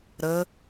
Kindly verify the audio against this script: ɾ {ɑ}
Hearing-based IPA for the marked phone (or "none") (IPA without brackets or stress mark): ə